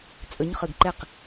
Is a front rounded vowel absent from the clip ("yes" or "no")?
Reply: yes